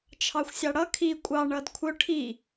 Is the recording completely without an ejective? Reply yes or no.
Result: no